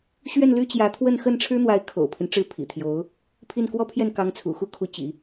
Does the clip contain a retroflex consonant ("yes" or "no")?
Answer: yes